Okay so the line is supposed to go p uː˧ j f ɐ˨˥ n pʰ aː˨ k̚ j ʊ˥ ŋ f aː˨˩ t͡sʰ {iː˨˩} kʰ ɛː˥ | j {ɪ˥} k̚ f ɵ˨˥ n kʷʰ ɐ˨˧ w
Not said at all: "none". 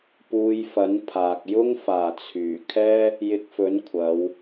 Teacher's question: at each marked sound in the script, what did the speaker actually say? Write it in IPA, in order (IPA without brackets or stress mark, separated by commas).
yː˨˩, ɪ˧